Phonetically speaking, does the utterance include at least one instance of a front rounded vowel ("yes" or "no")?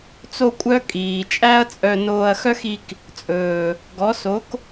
yes